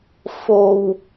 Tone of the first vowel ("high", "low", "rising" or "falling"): low